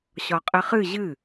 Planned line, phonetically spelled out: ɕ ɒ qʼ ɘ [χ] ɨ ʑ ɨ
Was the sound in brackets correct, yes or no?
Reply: yes